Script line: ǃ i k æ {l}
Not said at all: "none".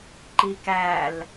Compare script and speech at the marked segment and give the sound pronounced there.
l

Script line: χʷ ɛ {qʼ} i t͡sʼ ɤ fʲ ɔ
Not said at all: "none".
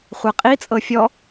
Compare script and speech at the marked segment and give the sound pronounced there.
qʼ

